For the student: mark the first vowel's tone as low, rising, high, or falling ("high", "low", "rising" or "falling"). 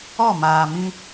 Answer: falling